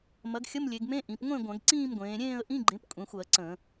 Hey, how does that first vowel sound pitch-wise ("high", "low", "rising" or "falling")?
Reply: rising